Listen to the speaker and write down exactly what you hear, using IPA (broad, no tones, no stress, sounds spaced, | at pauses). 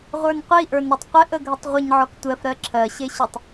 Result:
ʁʷ ə˞ n qʷ i ʔ ə˞ n ɾ ɜ tˤ qʷ ɪ ʔ ə ɡʱ ʏ tˤ ʁʷ ɪ ɲ ʕ ɔ k tʷ ɜ f ɾ ɜ ǁʰ ɜ ɕ e ɕ ʏ tˤ